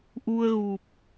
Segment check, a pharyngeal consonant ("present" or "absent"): absent